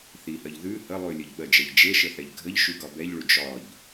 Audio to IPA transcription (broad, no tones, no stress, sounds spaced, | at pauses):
θ i h ɜ ʎ ð ʉ h ə lˠ ʉ lʲ ə ʎ ɓ ɜ d͡ʒ ɛ ʎ d͡ʒ e ʃ ə θ ɛ ʎ ɡʱ ə ʎ ʃ ʉ ɡ ɒ b ɛ ʎ ɭ ʉ d͡ʒ ɒ ʎ